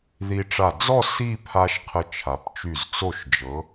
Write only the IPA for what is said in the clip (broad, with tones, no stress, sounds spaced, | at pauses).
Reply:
ð i˧ ʈ͡ʂ a˧˩ d͡z ɔ˥˧ s i˥˧ pʰ a˧ ʃ qʰ ə˧ t͡ʃʰ a˩˧ p t͡ʃ y˧˩ z t͡s o˧˩ ʃ d͡ʒ ɤ˩˧